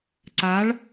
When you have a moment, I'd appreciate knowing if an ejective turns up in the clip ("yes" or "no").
no